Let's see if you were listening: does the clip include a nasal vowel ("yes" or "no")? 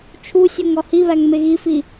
no